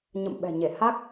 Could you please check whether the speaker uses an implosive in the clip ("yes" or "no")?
yes